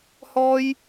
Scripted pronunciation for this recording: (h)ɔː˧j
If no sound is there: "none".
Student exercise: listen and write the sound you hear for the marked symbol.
h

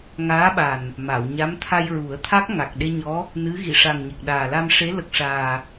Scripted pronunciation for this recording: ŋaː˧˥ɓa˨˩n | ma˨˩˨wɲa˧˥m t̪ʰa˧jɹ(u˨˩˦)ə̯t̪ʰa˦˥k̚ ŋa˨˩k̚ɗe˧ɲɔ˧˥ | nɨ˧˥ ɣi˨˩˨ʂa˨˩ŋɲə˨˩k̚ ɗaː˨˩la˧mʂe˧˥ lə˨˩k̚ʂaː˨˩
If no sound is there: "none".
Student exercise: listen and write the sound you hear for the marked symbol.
u˨˩˦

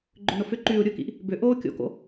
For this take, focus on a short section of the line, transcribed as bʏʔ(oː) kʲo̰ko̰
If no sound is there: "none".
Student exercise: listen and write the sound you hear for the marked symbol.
oː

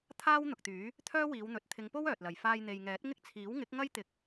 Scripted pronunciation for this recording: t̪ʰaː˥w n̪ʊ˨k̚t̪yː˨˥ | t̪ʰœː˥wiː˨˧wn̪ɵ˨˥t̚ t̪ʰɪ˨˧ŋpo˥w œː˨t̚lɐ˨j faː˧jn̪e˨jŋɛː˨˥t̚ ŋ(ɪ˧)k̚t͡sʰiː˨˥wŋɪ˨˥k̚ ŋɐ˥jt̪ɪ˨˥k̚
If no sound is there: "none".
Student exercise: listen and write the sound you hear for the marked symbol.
ɪ˥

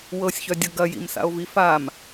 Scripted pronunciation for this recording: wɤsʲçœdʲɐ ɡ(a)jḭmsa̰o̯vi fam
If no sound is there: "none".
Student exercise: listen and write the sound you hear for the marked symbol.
ɐ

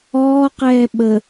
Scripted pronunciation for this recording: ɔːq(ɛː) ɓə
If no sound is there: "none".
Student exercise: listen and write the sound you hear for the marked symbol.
ɛː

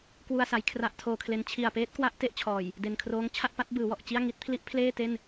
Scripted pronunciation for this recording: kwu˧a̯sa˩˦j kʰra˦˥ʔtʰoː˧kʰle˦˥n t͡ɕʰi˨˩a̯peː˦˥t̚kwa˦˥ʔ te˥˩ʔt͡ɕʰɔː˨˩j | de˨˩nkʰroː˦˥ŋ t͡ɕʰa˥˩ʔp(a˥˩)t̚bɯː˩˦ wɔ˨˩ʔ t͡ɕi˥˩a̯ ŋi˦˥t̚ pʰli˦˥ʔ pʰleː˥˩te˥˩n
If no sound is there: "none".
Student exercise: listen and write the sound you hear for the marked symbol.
a˦˥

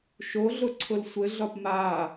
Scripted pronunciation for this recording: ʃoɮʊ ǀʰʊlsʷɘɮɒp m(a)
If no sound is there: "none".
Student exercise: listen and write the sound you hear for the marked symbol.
a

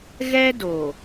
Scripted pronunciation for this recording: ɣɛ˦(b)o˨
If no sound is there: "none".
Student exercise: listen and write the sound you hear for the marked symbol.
d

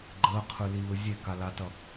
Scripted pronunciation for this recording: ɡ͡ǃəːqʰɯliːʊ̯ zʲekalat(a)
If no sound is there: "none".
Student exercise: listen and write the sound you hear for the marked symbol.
ʌ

